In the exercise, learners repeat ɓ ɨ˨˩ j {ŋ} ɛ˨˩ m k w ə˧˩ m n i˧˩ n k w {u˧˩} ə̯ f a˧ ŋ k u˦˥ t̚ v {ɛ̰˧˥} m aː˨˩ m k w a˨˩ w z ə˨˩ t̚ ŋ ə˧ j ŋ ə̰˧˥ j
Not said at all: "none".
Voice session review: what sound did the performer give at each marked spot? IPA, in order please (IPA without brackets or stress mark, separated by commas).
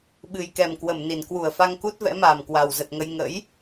k, u˧˩, ɛ̰˧˥